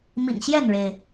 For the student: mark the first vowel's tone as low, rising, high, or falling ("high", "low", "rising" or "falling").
low